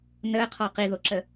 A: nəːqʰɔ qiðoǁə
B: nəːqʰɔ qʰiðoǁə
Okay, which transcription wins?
A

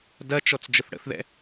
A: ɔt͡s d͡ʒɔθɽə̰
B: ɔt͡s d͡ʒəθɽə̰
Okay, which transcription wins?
B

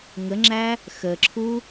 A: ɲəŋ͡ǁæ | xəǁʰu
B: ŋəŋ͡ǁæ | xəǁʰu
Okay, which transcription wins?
B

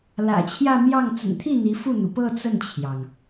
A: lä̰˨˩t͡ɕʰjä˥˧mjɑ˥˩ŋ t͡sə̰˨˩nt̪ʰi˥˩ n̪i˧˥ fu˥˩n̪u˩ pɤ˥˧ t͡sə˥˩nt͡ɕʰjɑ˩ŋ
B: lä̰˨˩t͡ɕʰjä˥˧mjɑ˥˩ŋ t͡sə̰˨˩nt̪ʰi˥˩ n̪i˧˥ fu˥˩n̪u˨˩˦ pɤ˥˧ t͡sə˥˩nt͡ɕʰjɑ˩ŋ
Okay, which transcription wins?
A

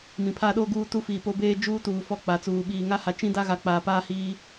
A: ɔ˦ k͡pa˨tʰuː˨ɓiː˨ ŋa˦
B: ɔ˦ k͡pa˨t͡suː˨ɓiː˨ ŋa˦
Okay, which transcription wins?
B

